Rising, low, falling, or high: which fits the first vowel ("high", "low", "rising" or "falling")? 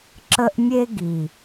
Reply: high